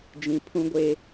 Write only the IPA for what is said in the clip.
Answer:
d͡ʒ ĩ˨ pʰ ũ˦ ɡʷ e˦

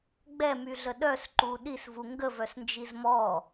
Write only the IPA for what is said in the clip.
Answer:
ɡ͡b ɛ m y ɮ ə ɗ œ s ǃ u ɗ i s v u ŋ ɡ ə v œ s n d͡ʒ i z m ɔ

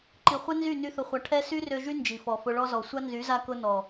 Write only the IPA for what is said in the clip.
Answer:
ǃ i˨ χʷ ɛ˦ n z y˦˨ n y˦ θ ʊ˧ χʷ a˧ ʈʰ ɛ˦ s y˦ r ø˧ ʒ y˦ n d͡ʒ i˨ f ɔ˨ f ʊ˧ ɭ ɔ˧ z ɔ˨ sʷ a˦ n z y˨˦ z a˧ k ʊ˧ n ɔ˨

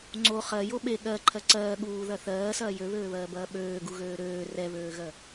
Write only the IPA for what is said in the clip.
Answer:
ŋ͡ǀ o χ ɜ j o ɓ e ɠ ɜ ǃʰ ɜ ǀ ɜː ɠ uː ð ɐ θ ɜː s ɐː j ø β øː β ɜː b ɐː ɓ øː ɡ u ɣ øː ɾ øː r ɛ β øː ɣ ɜ

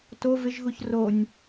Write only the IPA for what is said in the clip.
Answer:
t o v ɪ ʒ ɣ u ç r o nʲ

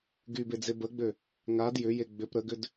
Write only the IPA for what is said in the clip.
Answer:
ɡ y b e d͡z e b ə ɡ͡b ø | ŋ a d j ʏ j e ɡ͡b ʏ p ɾ ə ɡ ʏ d

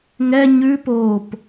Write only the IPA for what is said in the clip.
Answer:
ŋ ɛ ɲ ʉ p oː p

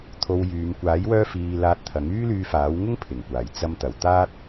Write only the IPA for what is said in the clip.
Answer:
t̪ʰ o˧ w j yː˨˧ m kʷ aː˨˥ j w œː˧ f iː˧ l aː˧ t̚ t̪ʰ ɐ˨˥ ŋ yː˥ l yː˧ f aː˨˥ w ŋ ʊ˥ ŋ pʰ ɪ˨˩ ŋ kʷ aː˨˩ j t͡s ɐ˧ m t̪ ɐ˨˩ w t̪ aː˥ t̚

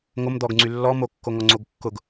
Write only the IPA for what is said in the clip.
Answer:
ŋ o m d̪ ɔ ɡ ŋ͡ǀ y lː ɔ m o kː o ŋ ɔ ŋ͡ǀ o ɡ kː ʊ ɡ

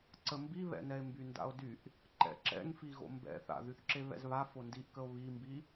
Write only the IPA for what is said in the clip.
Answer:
ǀ ə m b i β ɛ̰ n ɛ e̯ m b y n d a̰ o̯ d y ʔ | ǃ ɛ̰ ǁ ɛ̰ ŋ f i ɣ o̰ m b ɛ̰ θ a̰ ð y θ ǁ e β ɛ̰ z β a f o n d i ʔ k ə o̯ β i m b i

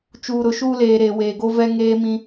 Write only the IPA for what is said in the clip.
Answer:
t͡ʃ uː˨ ɾ ʊ˨ ʃ uː˦ l eː˨ ɾ e˨ w eː˨ ɡ o˦ v ɛ˦ ŋ eː˦ m ĩ˦

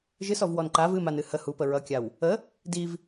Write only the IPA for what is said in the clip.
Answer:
ʒ ɨ s ɔ v w ɔ n ǃ a v ɨ m a n ɨ h ə h u p ə ɹ ʌ kʲ a w | ə | d i v

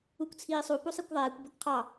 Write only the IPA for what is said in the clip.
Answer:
u kʷ t͡sʰ iː sˤ u p u sˤ i kʷ ðˤ ɛː kʷ b ɛ kʷ qʰ ɑ

